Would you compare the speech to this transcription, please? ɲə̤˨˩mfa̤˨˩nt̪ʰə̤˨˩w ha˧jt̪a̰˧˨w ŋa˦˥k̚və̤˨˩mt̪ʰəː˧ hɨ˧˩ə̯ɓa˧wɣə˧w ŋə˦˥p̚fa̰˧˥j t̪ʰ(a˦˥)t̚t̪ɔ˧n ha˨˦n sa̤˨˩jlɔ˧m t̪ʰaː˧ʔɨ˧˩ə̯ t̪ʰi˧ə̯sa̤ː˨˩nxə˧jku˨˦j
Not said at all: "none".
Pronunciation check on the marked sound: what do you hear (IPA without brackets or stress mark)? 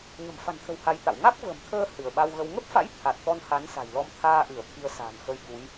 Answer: a˨˩